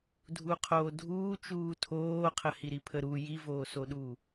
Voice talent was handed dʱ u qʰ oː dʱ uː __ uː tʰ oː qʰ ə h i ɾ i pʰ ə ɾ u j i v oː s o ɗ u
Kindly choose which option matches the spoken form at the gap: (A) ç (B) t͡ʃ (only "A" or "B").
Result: B